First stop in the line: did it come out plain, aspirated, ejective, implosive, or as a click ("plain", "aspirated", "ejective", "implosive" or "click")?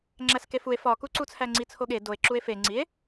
click